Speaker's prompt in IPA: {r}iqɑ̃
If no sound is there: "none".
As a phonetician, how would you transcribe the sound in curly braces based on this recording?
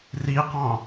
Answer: r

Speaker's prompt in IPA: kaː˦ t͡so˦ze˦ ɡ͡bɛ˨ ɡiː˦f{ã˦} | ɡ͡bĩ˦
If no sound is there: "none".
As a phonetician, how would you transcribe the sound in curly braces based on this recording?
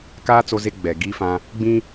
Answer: ã˦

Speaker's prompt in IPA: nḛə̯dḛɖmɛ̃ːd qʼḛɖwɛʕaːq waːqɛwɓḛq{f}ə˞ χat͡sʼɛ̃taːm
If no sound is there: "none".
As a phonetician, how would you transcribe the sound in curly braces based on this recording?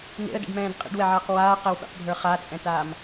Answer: bʱ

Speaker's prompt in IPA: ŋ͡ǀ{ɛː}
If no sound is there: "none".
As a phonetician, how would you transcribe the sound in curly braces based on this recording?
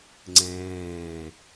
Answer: ɛ̃ː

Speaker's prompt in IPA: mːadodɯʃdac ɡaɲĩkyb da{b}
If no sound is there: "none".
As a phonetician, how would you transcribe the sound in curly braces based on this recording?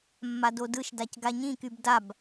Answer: b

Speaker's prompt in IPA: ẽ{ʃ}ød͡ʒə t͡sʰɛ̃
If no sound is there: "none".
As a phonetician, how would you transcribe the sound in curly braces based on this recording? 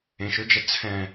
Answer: ʃ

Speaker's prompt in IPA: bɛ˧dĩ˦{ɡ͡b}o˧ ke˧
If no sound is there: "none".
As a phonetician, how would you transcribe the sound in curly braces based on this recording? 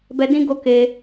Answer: ɡ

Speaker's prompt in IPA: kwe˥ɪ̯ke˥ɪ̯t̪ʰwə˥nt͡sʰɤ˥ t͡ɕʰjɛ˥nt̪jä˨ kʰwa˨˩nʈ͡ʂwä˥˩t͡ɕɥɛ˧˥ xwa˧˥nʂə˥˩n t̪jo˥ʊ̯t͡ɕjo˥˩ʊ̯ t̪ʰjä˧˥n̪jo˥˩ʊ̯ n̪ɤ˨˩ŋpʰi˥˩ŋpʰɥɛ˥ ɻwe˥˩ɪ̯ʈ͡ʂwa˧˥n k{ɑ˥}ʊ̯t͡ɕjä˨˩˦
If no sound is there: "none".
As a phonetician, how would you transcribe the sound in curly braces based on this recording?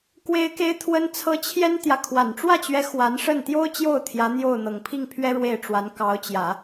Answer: ɑ˧˥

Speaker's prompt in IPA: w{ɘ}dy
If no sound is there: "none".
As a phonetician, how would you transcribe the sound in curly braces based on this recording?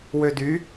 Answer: ø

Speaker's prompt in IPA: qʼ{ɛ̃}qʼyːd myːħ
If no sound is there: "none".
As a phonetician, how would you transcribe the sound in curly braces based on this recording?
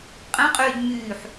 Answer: ɛ̃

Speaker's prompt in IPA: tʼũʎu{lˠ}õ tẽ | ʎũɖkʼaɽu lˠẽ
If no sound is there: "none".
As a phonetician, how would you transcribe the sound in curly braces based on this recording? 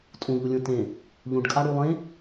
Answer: lʲ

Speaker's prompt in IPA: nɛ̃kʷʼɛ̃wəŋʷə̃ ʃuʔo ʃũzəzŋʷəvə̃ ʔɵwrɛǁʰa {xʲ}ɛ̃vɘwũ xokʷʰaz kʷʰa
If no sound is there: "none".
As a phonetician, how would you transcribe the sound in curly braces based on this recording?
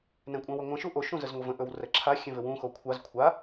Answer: xʲ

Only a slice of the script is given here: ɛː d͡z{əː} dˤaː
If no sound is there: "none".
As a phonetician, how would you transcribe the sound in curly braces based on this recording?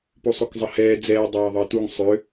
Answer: ɛː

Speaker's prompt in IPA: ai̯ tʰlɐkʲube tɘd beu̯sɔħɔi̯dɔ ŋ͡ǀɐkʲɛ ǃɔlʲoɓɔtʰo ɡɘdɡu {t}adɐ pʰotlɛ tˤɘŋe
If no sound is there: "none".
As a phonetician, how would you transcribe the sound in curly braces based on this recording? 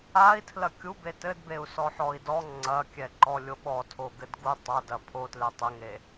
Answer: tˤ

